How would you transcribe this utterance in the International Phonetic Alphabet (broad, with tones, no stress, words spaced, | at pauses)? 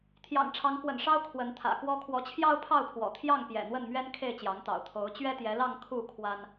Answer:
t̪ʰjɑ̰˨˩ŋʈ͡ʂʰɑ˨˦ŋkwə̰˨˩nʂɑ˦ʊ̯ kʰwə˨˦nt̪ʰä̰˨˩kwɔ˦ kʰwɔ˨˦t͡ɕʰjɑ˦ʊ̯pʰɑ˥˨ʊ̯pʰwɔ̰˨˩ t̪ʰjɑ˥˨ŋ pjɛ̰˨˩n̪wə˥˨nmɥɛ˦n kʰe˥˨ɪ̯t͡ɕjɑ˨˦ŋt̪ɑ̰˨˩ʊ̯ t̪ʰo˨˦ʊ̯ t͡ɕɥɛ˦t̪jɛ˨˦lɑ˥˨ŋ kʰu˥˨ kʰwa˦n